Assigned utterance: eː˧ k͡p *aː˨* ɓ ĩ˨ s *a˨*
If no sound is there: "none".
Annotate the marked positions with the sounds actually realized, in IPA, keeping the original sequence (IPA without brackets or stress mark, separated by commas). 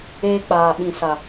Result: aː˨, a˨